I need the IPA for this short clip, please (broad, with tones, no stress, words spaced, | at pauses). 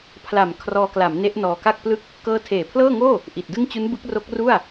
pʰla˨˩m kʰrɔː˧kla˩˦m ne˦˥ʔnɔː˧ka˥˩k̚plɯ˥˩k̚ | kɤː˦˥tʰeː˨˩pʰlɤː˥˩ŋoː˥˩ | ʔi˨˩t̚dɯ˥˩ŋ t͡ɕu˦˥nbɯ˦˥k̚ro˦˥k̚ ru˥˩a̯